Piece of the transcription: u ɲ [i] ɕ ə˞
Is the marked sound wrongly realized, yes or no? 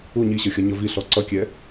no